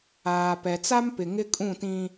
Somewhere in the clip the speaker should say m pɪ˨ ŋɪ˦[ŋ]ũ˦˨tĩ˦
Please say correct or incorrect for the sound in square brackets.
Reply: incorrect: kʼ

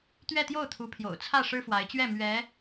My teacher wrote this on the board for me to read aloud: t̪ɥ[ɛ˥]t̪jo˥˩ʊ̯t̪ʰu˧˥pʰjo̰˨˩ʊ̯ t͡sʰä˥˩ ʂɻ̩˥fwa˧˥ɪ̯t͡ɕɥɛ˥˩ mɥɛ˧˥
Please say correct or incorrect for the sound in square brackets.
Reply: incorrect: ɛ˥˧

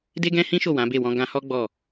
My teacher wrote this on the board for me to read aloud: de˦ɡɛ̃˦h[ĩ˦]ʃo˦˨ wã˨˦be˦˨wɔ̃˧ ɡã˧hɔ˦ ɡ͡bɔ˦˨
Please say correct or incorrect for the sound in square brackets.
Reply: correct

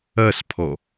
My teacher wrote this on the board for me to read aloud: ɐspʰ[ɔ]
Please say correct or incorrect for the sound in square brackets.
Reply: correct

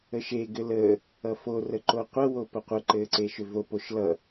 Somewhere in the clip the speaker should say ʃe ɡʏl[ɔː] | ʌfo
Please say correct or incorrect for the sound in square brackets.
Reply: incorrect: əː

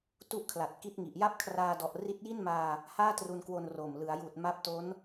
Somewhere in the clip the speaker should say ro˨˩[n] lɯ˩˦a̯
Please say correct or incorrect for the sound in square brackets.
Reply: incorrect: m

